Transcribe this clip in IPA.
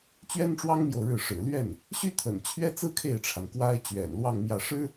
t͡ɕ ɥ ɛ˥ n ʈ͡ʂ w ɑ˥ ŋ m j o˨ ʊ̯ ɻ ɻ̩˥˩ ʂ ɻ̩˨˩ l ɥ ɛ˥˩ n | ɕ y˥ t̪ʰ ə̰˨˩ n t͡ɕʰ ɥ ɛ˥ t͡s ɹ̩˥ kʰ e˥˩ ɪ̯ ʈ͡ʂʰ a˩ n k w a˥ ɪ̯ t͡ɕ ɥ ɛ̰˨˩ n l w ɑ˥˧ ŋ m j ä˥˩ ʂ ɻ̩˥

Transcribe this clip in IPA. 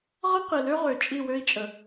ʁ ʌ˦ q i˨ l ø˦ ʁ ø˨ t͡ʃʼ i˦˨ w ø˦ i̯ t͡ʃʼ ə˨

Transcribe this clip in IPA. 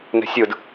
n ɛ̤ sʲ ɯ d

